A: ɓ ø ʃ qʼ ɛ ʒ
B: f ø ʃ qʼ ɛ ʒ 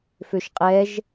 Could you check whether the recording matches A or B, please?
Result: B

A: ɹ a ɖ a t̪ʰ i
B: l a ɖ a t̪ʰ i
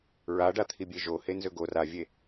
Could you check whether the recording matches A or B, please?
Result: A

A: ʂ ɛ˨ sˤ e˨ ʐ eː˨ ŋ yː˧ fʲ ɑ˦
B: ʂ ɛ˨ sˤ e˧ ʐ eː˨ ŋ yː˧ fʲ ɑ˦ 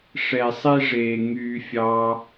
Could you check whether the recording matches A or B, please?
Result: B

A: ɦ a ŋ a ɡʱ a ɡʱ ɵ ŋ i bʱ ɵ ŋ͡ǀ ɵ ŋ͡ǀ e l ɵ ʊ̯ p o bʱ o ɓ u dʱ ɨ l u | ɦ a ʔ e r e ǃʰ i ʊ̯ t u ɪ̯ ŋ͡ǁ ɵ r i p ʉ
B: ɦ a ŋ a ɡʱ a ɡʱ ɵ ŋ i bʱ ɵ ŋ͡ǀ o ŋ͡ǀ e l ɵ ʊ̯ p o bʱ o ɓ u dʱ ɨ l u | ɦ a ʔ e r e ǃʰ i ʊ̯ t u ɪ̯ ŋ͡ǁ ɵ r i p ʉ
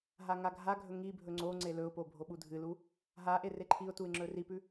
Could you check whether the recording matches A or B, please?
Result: B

